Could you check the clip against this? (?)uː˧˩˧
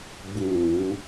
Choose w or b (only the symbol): b